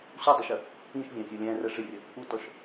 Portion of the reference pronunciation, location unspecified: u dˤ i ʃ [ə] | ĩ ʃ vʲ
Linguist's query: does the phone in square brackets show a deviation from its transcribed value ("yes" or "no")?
no